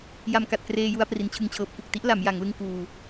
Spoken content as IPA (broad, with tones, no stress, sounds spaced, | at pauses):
j a˧ m k a˨˩ t̚ k r eː˧ j u˧ a̯ p r i˦˥ n t͡ɕʰ ɯ˥˩ ŋ t͡ɕʰ ɤː˦˥ p̚ k u˨˩ k̚ t i˦˥ ʔ l a˩˦ m j a˩˦ ŋ l ɯ˧ ŋ k uː˧